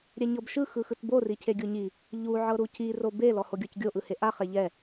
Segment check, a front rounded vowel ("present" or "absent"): absent